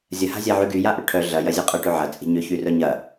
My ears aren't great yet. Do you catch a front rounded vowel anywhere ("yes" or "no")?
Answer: yes